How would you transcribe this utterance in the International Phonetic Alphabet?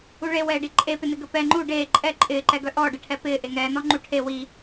uɭewɛːɖi ǃʼepɪnɪ ɡəpɛ ŋ͡ǃu ɖeː ǃʼɛ ǃʼɪːǃɛɡœ ʔɔːɖəʈʰɛ pɪː ʔeŋɛːnɔ ŋ͡ǃuʈʰe wi

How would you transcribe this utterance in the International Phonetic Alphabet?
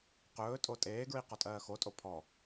qɵːtʼo tʼeːɡɹi qɔtʼɜːxotʼo pʰɔ

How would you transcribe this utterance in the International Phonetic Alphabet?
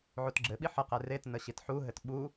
ʕutɡ͡ǁɘɓi ħəqe retnə ɕitħuɦɘt ɓu

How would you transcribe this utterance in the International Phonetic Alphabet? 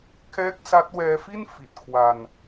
kʰɛː˦˥k̚sa˦˥t̚wɛː˧fi˥˩n fi˨˩t̚kʰwa˧n

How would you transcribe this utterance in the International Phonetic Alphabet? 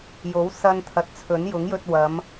jo˨˥wsɐ˧n t̪ʰɐ˨t̚t͡sʰɵ˨˥n jʊ˨˥ŋjɵ˧t̚ wɐ˨˧m

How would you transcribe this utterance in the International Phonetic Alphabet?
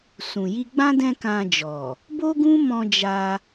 sũ˨ji˧ ɡ͡bã˦ dɛ̃˦kã˧d͡ʒɔ˨ | bo˦ɡũ˦mɔ̃˧ d͡ʒa˧

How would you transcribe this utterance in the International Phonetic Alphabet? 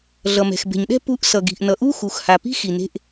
ɮʌ˩mɛ̤˩xbe̤˩ɲɗɛ̤˥ pu˧ʔ sʌ˩ɡi̤˩ʔnʌ˩ ʔu˥xu˩xha˩pi̤˥ xi˩ne̤˧ʔ

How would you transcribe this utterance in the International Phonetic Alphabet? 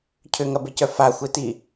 cʰʏŋɐbecœ faxʷeti

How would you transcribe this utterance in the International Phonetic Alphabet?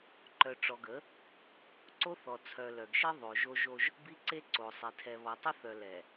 ǃœ˨ʈ͡ʂɔ˨ɡə˨˦ | ǀo˦θɔ˨t͡sʰœ˨ lœ˨ɡʃi˦ ðˤo˨ʒo˦ʒo˦ʒ | bi˦ǀe˦ǀo˨sˤi˨ tʰɛ˨βɔ˨tˤə˦θœ˨ lɛ˨

